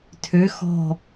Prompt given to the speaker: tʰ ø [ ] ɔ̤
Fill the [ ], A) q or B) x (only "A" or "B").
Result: B